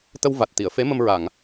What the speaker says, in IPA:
t̪ ə˧ w v a˨˩ t̚ t̪ i˨˩˨ ə̯ f e˧˥ m ə˧ m ɹ a˨˩˨ ŋ

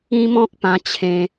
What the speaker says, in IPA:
ĩ˦ m ɔ̃˦ k̚ p ã˧ t͡ɕʰ ẽ˧

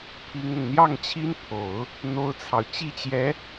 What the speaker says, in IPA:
pʰ i˥ ŋ ʊ˨ ŋ n̪ j ɑ˥˩ ŋ t͡ɕʰ i˥ n pʰ o˨˩˦ ʊ̯ | n̪ o˥ ʊ̯ t͡sʰ ɑ˨ ʊ̯ t͡ɕ i˥˩ t͡ɕ j ɛ˧˥

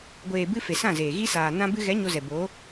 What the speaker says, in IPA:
ɡʷ eː˨ b ɨ˧ f e˨ s ã˦˨ z eː˨ ɣ i˦ s aː˨ n ã˧ b ɨ˧ ɣ ɛ˨˦ ɲ o˧ z ɛ˨ b oː˨˦

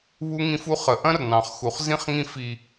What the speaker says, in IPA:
β u˦ ŋ ĩ˦ f u˦ χ ə˨ ʔ ɐ̃˦ r n ɑ̃˨ χ x u˨ χ z ĩ˦ χ ŋ ĩ˦ f i˦

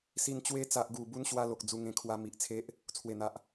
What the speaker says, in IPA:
s i˧ n t͡ɕ w e˧ t͡s a˨ ʔ ɡ u˨˩ b u˧ n ɕ w a˧ l o˨ k̚ d͡z u˧ ŋ ẽ˧ kʰ w a˧ m i˨ ʔ t͡sʰ e˦ ʔ | t͡sʰ w e˨˩ n̪ a˨ ʔ

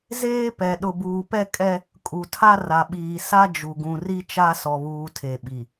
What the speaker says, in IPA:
z eː˦ p ɛ˨ ɗ ʊ˨ b uː˨ p ɛ˦ kʼ ɛ˦ | kʼ u˨ tʰ a˦ r a˨ ɓ iː˨ s a˦ d͡ʒ u˨ ɡ ũ˨ r i˦ t͡ʃ a˦ s ɔ˨ β uː˨ tʰ e˨ ɓ i˨

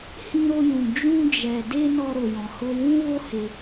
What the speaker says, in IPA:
h ĩ˧ ɾ o˧ j ũ˨ d͡ʒ ũ˧ d͡ʒ ɛ˨ d e˧ n ɔ˧ ɾ o˨ j ɔ̃˨ h o˧ w ũ˦ w o˦ h e˧

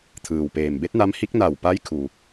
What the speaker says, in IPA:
t̪ʰ ɯː˩ w p eː˩ m b e˧˥ t̚ n a˧˥ m h i˧˥ k̚ n a˧˩ w p a˧˥ j kʰ u˩

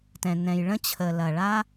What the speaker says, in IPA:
t ɛ̃˩ n ɛ̃˩ j ɭ ə̃˥ t͡ɕʰ ə˩ l ɐ˩ ɭ a˥

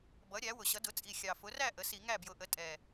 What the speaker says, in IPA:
b ʌ˩˥ ɾʲ æ˩˥ w ʊ˨˩ ɕ ʌ˩˥ d ʊ˩˥ t͡sʼ i˨˩ xʲ ɑ˨˩ f ʊ˩˥ r æ˥˩ ʔ ə˩˥ s i˧˩˧ ŋ æ˥˩ b j ʊ˩˥ ʔ ə˩˥ tʼ ɛ˨˩

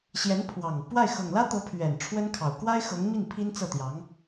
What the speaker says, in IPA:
ɕ j ɛ˧˥ n pʰ w ɑ˨˩ ŋ p w a˥˩ ɪ̯ x ɤ˨˩ ŋ l ä˥ t̪ ɤ˧˥ pʰ ɥ ɛ˨˩ n ʈ͡ʂʰ w ə˥ n kʰ ɑ˨˩ ʊ̯ k w a˥ ɪ̯ x ɤ˧˥ ŋ m i˥˩ n pʰ i˥ n t͡s ɤ˥˩ t̪ j ɑ˧˥ ŋ

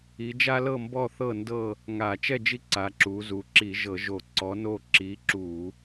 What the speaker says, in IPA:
i˩˧ d͡ʒ a˦ l ɤ˥˨ m b ɔ˥˨ θ ɤ˥˨ n d ɤ˥˨ | ŋ a˧˩˧ t͡ʃ ɛ˥˨ d͡ʒ i˦ ǀ a˩˧ ǁ u˩˧ z u˩˧ ǁ i˧˩˧ ʒ ɤ˧˩˧ ʒ o˧˩˧ ǀ ɔ˨˥ n o˥˨ ǁ i˨˥ ǁ u˧˩˧

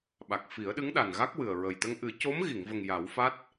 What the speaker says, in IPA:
ɓ a˨˩ k̚ f i˨˩˦ ə̯ ɗ ɨ˧˥ ŋ ɗ a˨˩ n ɣ a˦˥ k̚ w ɨ˨˩ ə̯ ɹ ə˨˩ j t̪ ə˧ ŋ ʔ ɨ˨˩˦ c o˧˥ m ɣ i˨˩˨ ŋ v ə˨˩ ŋ j a˨˩˦ w f a˦˥ t̚

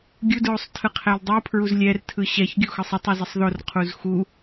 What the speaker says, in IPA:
ɡʲ u d ɹ o sˤ tʰ ɯ qʰ ɛ l dˤ ɯ pʰ ɹ u z lʲ ɛ r tʰ ɯ ɕ ɛ ç ɡʲ o x ɯ sˤ ə tˤ u z ə sˤ ð o r qʰ u z x u

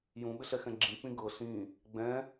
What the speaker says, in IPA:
j ũ ɓ ɪ ɬ ɛ x ɛ̃ ɡ͡ǁ ĩ k͡p ĩ ɡ ɤ ɬ ĩ | ɡ͡b ɛ̃

